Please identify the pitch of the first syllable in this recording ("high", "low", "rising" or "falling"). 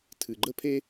low